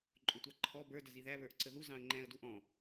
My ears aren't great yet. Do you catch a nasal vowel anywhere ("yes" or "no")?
yes